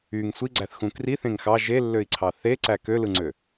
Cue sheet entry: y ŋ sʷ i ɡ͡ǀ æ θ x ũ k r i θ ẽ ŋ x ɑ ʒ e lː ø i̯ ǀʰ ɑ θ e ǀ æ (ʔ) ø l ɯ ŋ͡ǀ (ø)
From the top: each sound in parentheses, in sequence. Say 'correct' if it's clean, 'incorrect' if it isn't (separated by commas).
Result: incorrect, correct